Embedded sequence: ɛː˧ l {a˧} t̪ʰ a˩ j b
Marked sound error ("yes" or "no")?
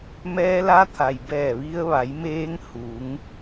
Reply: no